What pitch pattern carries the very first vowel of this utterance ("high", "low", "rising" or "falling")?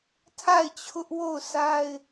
falling